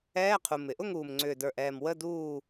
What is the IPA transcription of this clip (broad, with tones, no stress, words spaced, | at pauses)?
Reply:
ɛː˧˥˧qʰu˨˩m ɪ˨˩ʔʊ˥˨ŋuː˨˩mŋ͡ǀʏː˨˩ də˞˨˩ʔɛː˨˩m wə˧˥˧ duː˥˨